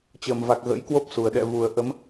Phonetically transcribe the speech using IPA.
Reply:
t͡ɕ əː˨˩ m v a˨˩ k̚ ɣ ə̰˧˥ j k w o˦˥ p̚ s u˨˩ ə̯ ɗ ɛ̰˧˨ v u˨˩ ə̯ ʔ ə˨˦ m

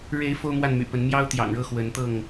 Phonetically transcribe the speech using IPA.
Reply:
ɻ e˨˦ ɪ̯ f o˦ ʊ̯ m w a˥˨ n m y̰˨˩ p ə˨˦ n m j ɑ˦ ʊ̯ t̪ j ɑ̰˨˩ ŋ ɻ ɤ˥˨ x w ə˨˦ n t̪ ɤ˥˨ ŋ

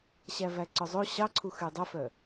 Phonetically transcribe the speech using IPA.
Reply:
ɕ æ v æ ǀ œ zˤ o ɕ ɑ ǀʰ u x y dˤ ɵ f œ

